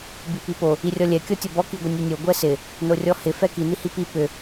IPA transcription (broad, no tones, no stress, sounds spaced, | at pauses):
b i p i p o | i rʲ ɔ lʲ ɛ kʲ ɔ tʲ ɔ b ɔ k i ɡʷ ɪ nʲ o nʲ o ɡʷ ɛ s ɪ | n o rʲ ɔ h ɪ f ɛ k i n i h i p i p ʏ